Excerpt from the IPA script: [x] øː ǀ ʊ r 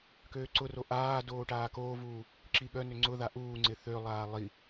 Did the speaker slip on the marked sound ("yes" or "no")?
yes